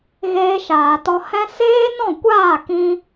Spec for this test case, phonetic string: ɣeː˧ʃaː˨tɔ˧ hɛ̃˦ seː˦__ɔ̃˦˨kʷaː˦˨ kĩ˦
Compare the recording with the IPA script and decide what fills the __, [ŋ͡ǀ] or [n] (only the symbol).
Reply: n